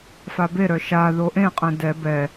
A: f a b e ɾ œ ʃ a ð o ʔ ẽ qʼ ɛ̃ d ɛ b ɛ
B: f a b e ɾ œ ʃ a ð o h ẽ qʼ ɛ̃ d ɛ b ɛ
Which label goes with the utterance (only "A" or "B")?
A